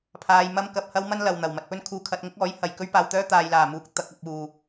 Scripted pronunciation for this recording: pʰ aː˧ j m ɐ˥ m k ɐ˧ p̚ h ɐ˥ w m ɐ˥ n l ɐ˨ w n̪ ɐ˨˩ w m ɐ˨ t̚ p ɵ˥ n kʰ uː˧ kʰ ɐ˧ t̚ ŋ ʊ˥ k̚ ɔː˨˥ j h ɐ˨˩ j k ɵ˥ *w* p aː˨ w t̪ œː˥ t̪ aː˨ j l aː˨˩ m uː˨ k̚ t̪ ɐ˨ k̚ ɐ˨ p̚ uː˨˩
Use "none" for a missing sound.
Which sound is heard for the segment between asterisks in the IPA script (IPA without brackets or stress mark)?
ɥ